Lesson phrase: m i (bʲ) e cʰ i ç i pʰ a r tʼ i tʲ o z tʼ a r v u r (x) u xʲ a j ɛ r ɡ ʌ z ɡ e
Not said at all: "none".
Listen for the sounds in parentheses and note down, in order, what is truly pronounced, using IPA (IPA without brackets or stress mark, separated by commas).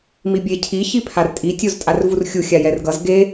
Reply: bʲ, xʲ